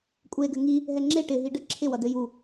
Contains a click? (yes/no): yes